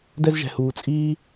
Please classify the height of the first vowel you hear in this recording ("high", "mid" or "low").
mid